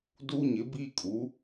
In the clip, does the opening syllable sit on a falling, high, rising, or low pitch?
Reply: high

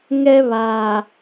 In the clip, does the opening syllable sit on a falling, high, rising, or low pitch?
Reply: high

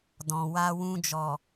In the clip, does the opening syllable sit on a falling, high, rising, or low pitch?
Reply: low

